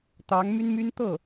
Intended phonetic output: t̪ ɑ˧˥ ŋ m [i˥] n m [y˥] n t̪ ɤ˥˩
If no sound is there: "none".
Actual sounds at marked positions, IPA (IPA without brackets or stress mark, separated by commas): y˥, y˥